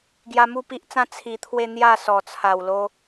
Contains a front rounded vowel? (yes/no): no